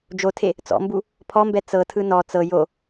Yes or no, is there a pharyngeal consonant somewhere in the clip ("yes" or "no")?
no